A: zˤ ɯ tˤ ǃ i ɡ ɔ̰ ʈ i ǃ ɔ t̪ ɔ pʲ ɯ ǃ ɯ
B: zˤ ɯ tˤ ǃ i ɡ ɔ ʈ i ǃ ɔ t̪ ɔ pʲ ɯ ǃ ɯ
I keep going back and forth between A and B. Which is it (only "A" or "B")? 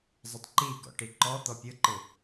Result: A